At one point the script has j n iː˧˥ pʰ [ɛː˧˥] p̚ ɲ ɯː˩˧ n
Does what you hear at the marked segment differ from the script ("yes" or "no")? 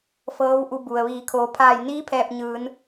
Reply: yes